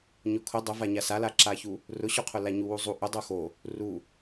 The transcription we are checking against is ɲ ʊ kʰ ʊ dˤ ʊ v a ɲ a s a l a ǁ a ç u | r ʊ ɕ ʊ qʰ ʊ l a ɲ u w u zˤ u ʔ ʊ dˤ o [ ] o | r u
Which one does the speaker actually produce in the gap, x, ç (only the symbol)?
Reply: x